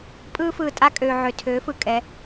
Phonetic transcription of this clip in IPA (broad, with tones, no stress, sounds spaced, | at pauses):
pʼ ɯː˦ f ɯː˨ tʼ a˦ kʼ øː˨ ʕ ø˨ tʰ øː˨˦ f ɯ˨ kʼ ɛ˨˦